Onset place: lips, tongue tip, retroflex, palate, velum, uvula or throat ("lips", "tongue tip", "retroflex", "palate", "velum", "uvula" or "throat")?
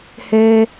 throat